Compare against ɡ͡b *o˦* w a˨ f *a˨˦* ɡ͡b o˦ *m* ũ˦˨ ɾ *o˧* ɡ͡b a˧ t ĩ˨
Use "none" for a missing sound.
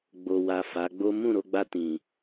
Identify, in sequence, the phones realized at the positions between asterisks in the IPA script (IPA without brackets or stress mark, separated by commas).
o˨, a˨˦, m, o˧